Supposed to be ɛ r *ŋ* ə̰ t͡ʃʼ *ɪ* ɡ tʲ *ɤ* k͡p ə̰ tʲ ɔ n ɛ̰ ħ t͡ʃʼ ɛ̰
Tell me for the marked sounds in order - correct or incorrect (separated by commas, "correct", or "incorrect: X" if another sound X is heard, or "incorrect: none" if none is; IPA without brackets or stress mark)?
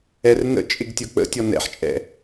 incorrect: n, correct, correct